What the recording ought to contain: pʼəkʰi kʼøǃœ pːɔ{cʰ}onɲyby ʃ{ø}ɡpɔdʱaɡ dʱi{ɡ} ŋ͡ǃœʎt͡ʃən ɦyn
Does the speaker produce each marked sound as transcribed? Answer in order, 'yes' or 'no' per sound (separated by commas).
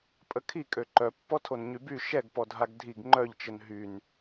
no, no, yes